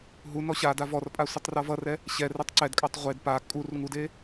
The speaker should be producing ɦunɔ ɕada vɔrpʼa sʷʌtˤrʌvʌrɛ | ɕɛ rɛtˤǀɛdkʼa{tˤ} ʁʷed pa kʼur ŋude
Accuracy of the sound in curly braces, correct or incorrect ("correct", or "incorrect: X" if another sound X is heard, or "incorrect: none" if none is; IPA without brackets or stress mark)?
correct